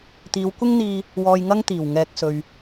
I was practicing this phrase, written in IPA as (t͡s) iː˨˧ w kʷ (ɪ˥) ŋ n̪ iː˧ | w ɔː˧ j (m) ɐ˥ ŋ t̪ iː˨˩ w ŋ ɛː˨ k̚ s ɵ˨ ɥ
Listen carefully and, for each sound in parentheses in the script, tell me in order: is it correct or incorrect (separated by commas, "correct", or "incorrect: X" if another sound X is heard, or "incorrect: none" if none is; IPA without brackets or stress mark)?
incorrect: t̪, correct, incorrect: ŋ